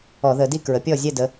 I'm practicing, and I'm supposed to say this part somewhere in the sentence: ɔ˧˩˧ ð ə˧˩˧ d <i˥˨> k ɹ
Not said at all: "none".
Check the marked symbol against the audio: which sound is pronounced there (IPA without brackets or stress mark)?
i˥˨